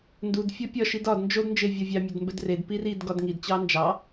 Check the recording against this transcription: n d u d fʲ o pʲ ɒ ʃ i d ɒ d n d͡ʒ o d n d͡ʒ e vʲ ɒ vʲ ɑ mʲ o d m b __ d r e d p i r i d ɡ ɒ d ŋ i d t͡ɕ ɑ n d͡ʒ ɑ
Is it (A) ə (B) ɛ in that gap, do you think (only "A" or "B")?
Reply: B